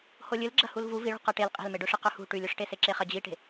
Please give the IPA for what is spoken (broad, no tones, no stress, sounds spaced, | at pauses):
h o lʲ ɨ l ɡ͡ǁ ɐ h u l v u v i ɭ ṳ q ɐ ʈ e l qʼ e̤ l m e ɖ ɵ ʂ ɨ q ɵ h ṳ ʈ ʉ lʲ ɵ ʂ ʈ e s e ǁ e χ ɐ d͡ʑ i ʈ e̤